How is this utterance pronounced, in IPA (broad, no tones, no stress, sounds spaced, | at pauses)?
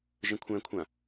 ʒ ə̃ kʷʰ æ̃ kʷʰ ã